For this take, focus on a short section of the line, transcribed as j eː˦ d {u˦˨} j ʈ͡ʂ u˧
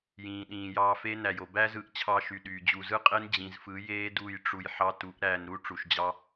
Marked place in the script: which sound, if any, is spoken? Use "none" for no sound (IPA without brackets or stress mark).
u˦˨